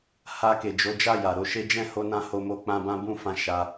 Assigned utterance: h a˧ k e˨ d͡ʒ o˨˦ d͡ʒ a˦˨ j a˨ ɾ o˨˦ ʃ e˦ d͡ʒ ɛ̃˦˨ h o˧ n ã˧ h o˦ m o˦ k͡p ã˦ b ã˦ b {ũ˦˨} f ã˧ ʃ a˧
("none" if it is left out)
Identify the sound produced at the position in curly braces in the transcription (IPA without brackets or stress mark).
ũ˦˨